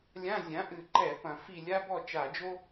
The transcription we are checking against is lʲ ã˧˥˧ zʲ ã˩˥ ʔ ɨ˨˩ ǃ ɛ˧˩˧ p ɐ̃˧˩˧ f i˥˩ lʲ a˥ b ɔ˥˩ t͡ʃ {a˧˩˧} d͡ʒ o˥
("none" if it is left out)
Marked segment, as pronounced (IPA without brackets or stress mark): a˧˩˧